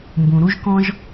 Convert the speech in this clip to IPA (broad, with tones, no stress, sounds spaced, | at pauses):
m b ũ˩ ɾ u˥ ʒ k ɔ̃˥ ʒ